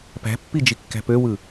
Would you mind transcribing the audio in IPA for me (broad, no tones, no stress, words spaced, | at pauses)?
pæ̤pːid͡ʒikːæ̤ pøwɯ